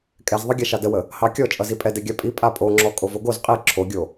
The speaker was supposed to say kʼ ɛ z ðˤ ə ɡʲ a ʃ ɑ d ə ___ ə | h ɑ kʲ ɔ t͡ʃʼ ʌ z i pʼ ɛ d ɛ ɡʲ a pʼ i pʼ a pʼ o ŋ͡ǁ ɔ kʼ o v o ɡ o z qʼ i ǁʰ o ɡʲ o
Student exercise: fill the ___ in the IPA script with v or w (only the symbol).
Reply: w